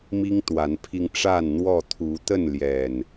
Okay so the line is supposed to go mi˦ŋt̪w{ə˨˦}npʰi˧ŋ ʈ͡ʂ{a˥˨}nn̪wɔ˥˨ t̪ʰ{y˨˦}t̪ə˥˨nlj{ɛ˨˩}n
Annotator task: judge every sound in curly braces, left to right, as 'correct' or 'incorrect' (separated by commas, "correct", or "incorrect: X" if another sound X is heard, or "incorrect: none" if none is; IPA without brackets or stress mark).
incorrect: a˨˦, correct, incorrect: u˨˦, correct